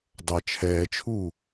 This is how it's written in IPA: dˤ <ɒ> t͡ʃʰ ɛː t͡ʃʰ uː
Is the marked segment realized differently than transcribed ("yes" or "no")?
yes